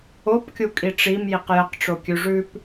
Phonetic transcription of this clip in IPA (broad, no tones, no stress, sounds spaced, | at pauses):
o p kʲ u kʼ i ʈ͡ʂ i m j i q j ə q ʈ͡ʂ o kʲ ʉ ʐ ʉ p